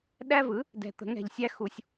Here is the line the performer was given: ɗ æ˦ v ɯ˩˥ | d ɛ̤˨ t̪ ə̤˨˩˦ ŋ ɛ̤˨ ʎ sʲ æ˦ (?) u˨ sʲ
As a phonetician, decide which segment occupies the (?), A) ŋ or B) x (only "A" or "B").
B